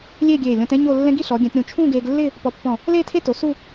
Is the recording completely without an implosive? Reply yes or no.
yes